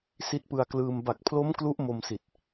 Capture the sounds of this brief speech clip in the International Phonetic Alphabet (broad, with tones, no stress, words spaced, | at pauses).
si˦˥t̚pɯ˧a̯klɯː˧m ba˨˩k̚pʰlo˦˥m klu˦˥ʔmo˧msi˨˩t̚